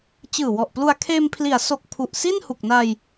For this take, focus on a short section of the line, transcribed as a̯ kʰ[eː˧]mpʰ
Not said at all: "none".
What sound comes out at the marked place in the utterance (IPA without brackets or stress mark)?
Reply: eː˧